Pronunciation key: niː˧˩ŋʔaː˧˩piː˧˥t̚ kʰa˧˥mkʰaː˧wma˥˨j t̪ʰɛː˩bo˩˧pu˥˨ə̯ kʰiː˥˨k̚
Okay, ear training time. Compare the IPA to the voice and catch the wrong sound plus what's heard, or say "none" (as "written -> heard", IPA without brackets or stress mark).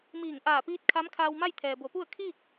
n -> m